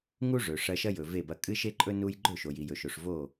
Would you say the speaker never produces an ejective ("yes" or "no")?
no